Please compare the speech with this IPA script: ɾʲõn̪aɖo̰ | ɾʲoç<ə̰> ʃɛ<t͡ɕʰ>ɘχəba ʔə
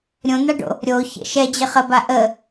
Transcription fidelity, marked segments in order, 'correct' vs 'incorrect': correct, incorrect: d͡ʑ

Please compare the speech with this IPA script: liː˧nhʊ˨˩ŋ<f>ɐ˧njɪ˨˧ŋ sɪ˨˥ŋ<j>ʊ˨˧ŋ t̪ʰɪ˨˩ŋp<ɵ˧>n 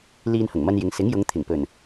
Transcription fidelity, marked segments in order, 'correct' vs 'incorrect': incorrect: m, correct, incorrect: ɵ˨˩

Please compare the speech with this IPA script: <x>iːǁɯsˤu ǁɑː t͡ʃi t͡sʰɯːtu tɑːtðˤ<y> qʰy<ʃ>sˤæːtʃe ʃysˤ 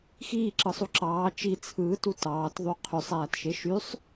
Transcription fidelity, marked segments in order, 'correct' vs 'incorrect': correct, correct, incorrect: none

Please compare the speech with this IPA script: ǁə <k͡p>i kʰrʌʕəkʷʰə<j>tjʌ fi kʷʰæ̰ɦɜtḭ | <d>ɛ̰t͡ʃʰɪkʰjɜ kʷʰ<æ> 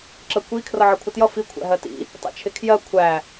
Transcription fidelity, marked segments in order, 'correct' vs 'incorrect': incorrect: kʷ, incorrect: none, incorrect: tˤ, correct

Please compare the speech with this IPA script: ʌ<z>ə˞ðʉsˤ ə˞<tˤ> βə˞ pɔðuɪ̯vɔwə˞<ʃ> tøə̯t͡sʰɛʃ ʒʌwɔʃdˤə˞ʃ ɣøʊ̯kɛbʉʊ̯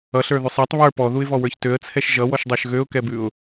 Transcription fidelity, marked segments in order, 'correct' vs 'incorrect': incorrect: ɬ, correct, incorrect: ç

